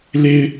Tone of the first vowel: high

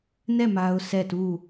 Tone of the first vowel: falling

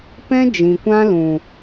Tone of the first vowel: high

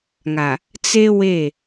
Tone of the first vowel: low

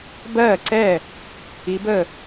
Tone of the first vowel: falling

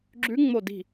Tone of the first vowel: rising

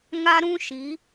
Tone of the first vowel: high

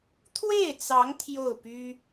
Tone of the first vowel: falling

